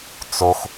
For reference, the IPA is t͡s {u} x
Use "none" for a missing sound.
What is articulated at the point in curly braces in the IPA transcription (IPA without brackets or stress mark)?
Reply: o